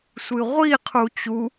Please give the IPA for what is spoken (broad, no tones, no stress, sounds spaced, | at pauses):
sʷ ɨ ʁʷ i qʰ u t͡ɕ u